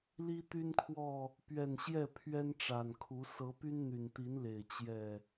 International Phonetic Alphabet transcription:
l i˦ t̪ y˦ n kʰ w ɔ˥˨ | p ɥ ɛ˨˩ n ɕ j ɛ˥˨ pʰ ɥ ɛ˦ n ʈ͡ʂ a˨˩ n kʰ u˨˦ s ɤ˨˦ p y˦ n n̪ y˨˩ n t̪ i˨˦ n l e˨˩ ɪ̯ t͡ɕ j ɛ˥˨

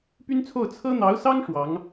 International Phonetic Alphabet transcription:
p y˥ n t͡sʰ o˥˩ ʊ̯ t͡sʰ ɤ˥ n̪ ɑ˧˥ ʊ̯ s ɑ˥ ŋ ʂ w ɑ˧˥ ŋ

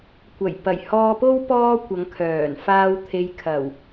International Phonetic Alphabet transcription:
kʷ ɐ˨˩ j p ɐ˨˩ j h ɔː˧ p o˥ w p ɔː˥ kʷ ɐ˨˧ ŋ kʰ œː˨˩ n f aː˧ w t̪ʰ e˨ j kʰ ɐ˨˩ w

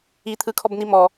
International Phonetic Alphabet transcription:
i t̪ʰ ɯ kʰ ɔ b n i m ɔ

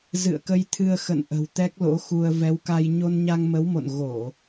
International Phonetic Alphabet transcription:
z ɨ̰˧˨ ə̯ k ə˧ j t̪ʰ ɨ˧ ə̯ x ə̰˧˨ n ʔ ə̤˨˩ w t̪ ɛ˦˥ k̚ l o̰˧˥ x u˧ ə̯ v ɛ˨˦ w k a˧ j ɲ o˧ n ɲ a˧ ŋ m ə˨˦ w m o̰˧˨ n ɣ o˧˩˨

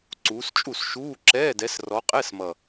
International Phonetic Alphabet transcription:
ǀ uː˨˦ s t͡ʃʼ u˥˩ s ʃ uː˧˥˧ ǁ ɛː˧˥˧ d ɛ˨˦ s r ɔ˨˦ qʼ ɛ˧˥˧ s m ʌ˨˩

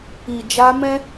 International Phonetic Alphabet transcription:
i˨ d͡ʒ a˧ m ɛ̃˦

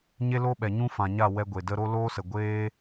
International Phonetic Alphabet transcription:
ɲ e˦ l o˦ ɓ ɛ˨ ɲ ũ˦ f ã˨ ɲ a˦˨ w ɛ˧ ɡʷ e˨ d ə˦ ɾ o˦ l oː˦ s ə˨ ɡʷ eː˦

